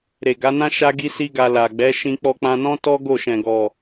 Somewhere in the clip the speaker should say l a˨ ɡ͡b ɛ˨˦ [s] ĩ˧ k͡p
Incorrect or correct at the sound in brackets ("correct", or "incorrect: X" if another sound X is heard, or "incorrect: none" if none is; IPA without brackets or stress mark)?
incorrect: ʃ